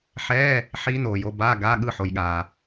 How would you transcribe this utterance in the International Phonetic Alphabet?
ħ ɛː˧˥˧ | ħ iː˦˥ n oː˨ j o˧˥˧ b aː˧˥˧ ɡ aː˧˥˧ ɠ ɯ˥˩ ħ o˨ j ɠ aː˨

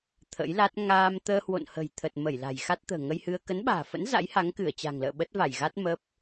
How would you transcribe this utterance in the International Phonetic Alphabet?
t̪ʰ ə̰˧˥ j l a˦˥ t̚ ŋ aː˧ m t̪ əː˧ h w o̰˧˨ n h ə̤˨˩ j t̪ʰ ə˨˩ t̚ m ə˧˩ j l a̤˨˩ j x a˦˥ t̚ t̪ ə̤ː˨˩ ŋ ə˧ j h ɨ˧ ə̯ k ə˨˦ n ɓ a̤ː˨˩ f ə̰˧˥ n z a̰˧˥ j h a˨˦ ŋ k ɨ˧˩ ə̯ t͡ɕ a̤˨˩ ŋ l ə̰ː˧˨ ɓ ə˦˥ t̚ v a˧˩ j ɣ a˦˥ t̚ m ə˦˥ p̚

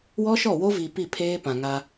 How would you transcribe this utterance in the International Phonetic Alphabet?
w ɔ˦ ʃ ɔ˦˨ w o˦ v i˨ p i˦˨ pʰ eː˦ p ã˨ ŋ a˦

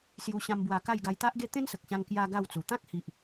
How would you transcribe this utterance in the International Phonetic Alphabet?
s j u˧ ɕ ã˧ m b w a˧ k a˥˧ j ɡ a˧ j t̪ a˦ ʔ ɡ e˦ t̪ ẽ˦ n s ə˨ k̚ ɕ ã˧ ŋ k j a˧ ɡ a˥˧ w t͡s u˨˩ t̪ ã˦ k̚ h i˨ ʔ

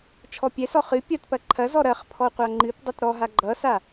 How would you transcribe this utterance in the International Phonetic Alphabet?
t͡ʃʰ ɔ pʲ ɛ s ɔ χ ɨ pʲ ɐ t p ɐ ǃʰ ɐ z ɔ ɾ ɐ χ pʰ ɔ qʷ a ŋ͡ǃ ɨ p dˤ ʌ t ɾ ɔ ɦ a ɡ͡ǃ ʌ s a

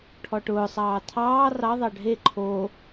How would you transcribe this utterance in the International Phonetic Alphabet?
ʈʰ ɔ ʈ ʊː sˤ ɑː tʰ ɑː r ɑ ðˤ ɑ ɖʱ e ǃʰ o

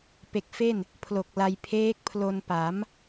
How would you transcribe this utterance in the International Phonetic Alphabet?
p e˨˩ k̚ f e˥˩ n | pʰ l o˨˩ k̚ l a˧ j pʰ eː˦˥ k̚ pʰ l o˧ n p a˩˦ m

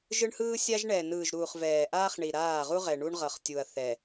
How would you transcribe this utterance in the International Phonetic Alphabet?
ʒ ɯ˦ ɳ h ɯː˦ sʲ a˦ ʒ ɳ ɛː˨ n ɯː˨ ʒ ɾ uː˨ χ v ɛː˨ ʔ aː˦ χ ɳ i˨ ɾ aː˦˨ ʁ u˦ ʁ ɛ˨ ɳ u˦ ɳ ʁ ʌ˨ χ tʲ u˨ ɐ̯ θ ɛ˨

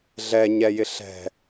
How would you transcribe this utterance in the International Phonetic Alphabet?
ɮ ɛ ɲ ɛ j ɪ ɬ ɛ̤

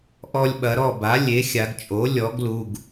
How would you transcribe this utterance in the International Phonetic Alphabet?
ʔ ɔ˧ lʲ ɓ ɐ˩˧ ɾ ɔ˥˨ b a˩˥ lʲ e˩˥ xʲ a˩˧ ɡ t͡ʃʼ o˩˥ lʲ ɔ˩˥ ɡ l u˩˧˩ ɡ

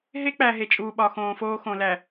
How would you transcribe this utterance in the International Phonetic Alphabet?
ɦ e˦ k͡p æ˨ ɦ e˨ t͡ʃʼ uː˨ ɓ ɒ˨ x õː˨ f oː˦ x õ˨ l æ˨

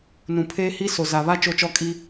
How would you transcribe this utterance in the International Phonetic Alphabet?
n ũ˨ pʰ eː˦ h i˦ s o˨ z a˨ β a˦ t͡ʃ o˦ t͡ʃ ɔ˦ kʼ i˦

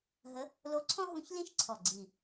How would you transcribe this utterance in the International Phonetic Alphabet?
ɦ ə˧˥ | l o˧˥ ǀʰ ɔ̃˥ ɦ ũ˧˥ ç l ĩ˥ ʃ ǀʰ ɔ˨˩ ɡ͡ǀ i˨˩

